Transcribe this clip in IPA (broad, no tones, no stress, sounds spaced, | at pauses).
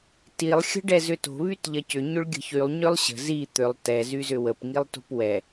t i lˠ xʲ ə̤ ɖ ɛ z ʏ t o̤ β y t ʎ ɐ c ʏ ɲ ʏ ɭ ɡʲ ə̤ ç y lˠ ɲ ʏ lˠ ɕ ə̤ z i t̪ ʏ lˠ t ɛ z y z ʏ w ə p ŋ i lˠ t o̤ p w ɛ